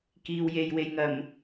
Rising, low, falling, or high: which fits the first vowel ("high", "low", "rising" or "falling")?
low